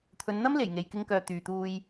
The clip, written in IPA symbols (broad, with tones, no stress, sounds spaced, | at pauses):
t̪ʰ ɵ˨˧ n n̪ ɐ˥ m l e˨˩ j ŋ e˨ j k ɪ˧ ŋ k œː˨ t̪ yː˨ t̪ uː˧ j